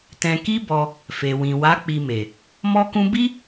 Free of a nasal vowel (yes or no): no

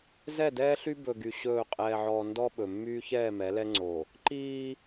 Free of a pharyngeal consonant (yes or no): no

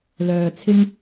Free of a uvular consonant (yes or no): yes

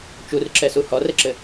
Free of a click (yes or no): no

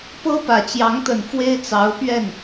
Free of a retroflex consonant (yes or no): yes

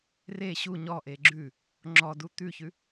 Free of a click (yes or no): no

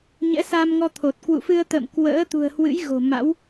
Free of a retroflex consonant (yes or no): yes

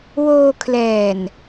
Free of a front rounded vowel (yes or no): yes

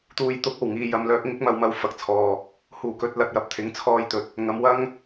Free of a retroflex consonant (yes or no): yes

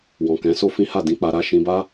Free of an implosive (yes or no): yes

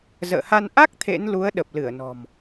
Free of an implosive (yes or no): no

